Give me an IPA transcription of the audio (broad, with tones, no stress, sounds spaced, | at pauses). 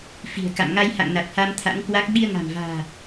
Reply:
f i̤˨˩ ə̯ k a̰˧˨ m ŋ a˧ j h a̰˧˨ ŋ n a˨˩ t̚ h a˧ m t̪ʰ a̰˧˥ ŋ k w a˦˥ k̚ ɓ i˧ ə̯ ŋ a̤˨˩ m v a̤ː˨˩